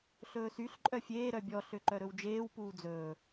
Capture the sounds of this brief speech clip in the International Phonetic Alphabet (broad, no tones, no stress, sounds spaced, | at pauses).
ɬ ɵː s y ɬ ǃʼ œ fʲ eː ɾ œ bʲ ɔ ɬ ø ǃ œ ɾ ɵ w d͡ʒ eː w p uː d͡z ɵː